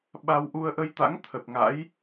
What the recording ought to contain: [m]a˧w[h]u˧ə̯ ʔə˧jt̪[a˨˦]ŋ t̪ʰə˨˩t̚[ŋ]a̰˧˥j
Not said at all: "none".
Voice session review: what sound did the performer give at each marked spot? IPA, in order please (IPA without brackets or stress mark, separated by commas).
ɓ, ʔ, a̰˧˥, ŋ